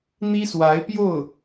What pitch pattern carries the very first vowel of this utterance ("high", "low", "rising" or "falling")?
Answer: high